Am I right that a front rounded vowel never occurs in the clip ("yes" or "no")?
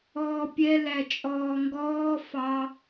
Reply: yes